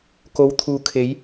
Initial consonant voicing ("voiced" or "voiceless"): voiceless